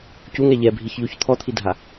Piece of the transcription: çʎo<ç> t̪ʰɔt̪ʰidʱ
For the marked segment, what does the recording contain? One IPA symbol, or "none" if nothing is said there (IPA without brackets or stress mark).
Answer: ç